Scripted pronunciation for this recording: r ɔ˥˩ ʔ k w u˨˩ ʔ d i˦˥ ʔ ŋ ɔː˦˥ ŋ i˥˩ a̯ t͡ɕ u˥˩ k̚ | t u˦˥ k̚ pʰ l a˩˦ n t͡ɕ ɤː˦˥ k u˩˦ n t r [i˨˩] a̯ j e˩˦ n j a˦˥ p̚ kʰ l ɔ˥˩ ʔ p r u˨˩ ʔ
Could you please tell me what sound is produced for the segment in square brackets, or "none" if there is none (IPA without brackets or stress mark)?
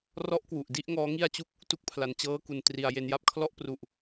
i˩˦